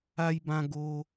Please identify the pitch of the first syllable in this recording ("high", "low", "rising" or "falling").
high